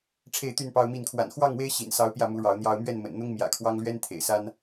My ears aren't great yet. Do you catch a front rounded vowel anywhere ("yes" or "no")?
yes